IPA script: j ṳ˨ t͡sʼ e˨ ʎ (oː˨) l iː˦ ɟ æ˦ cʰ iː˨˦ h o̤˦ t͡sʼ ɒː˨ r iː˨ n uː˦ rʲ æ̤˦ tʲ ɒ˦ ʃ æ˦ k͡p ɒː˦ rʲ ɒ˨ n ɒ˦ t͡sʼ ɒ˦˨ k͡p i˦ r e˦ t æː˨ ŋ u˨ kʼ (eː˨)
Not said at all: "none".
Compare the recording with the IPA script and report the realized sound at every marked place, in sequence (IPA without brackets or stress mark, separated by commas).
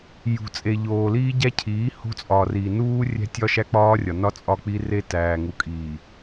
oː˨, iː˨